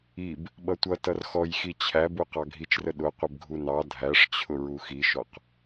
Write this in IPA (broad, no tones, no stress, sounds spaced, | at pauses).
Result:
i b | ɓ ʌ tʷ ʌ t ʌ r x ɔ j x i t͡ɕʰ æ b u q ɑ ɡʱ i t͡ʃ r ə ɗ ʊ qʷ ə b ɡʱ u n ɑ dʱ æ ʂ t͡ɕʰ ʊ ɹ u x i ʃ ɔ q